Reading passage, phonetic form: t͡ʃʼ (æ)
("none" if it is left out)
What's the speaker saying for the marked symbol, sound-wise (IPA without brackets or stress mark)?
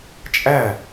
æ